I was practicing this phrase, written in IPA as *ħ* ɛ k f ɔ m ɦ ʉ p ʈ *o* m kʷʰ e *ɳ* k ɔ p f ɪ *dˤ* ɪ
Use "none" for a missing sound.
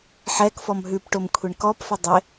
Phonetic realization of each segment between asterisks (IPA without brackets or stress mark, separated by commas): ħ, o, ɳ, dˤ